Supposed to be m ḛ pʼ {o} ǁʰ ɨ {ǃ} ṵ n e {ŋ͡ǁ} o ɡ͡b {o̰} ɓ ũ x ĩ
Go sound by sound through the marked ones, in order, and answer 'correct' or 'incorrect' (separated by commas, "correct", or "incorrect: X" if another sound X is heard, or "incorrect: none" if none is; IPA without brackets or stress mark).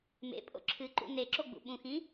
incorrect: o̰, correct, incorrect: ǁ, incorrect: ṵ